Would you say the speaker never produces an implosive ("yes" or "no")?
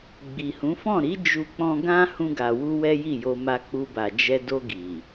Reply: yes